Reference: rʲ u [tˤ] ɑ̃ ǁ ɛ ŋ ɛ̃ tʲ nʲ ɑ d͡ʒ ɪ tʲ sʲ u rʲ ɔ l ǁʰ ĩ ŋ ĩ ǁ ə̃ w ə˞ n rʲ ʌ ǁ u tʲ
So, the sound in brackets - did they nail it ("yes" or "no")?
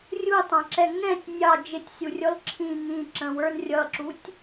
yes